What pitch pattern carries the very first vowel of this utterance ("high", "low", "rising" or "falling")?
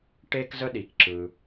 high